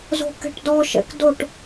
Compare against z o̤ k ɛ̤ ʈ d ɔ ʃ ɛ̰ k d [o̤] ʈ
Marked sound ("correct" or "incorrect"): incorrect